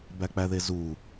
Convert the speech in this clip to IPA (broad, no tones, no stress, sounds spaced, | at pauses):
b æ k͡p æ ð e z u